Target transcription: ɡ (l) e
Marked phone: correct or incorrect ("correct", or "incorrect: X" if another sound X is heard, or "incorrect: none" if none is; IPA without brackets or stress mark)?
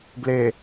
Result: correct